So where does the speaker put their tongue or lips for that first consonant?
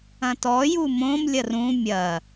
tongue tip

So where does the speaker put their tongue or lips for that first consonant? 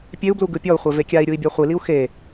lips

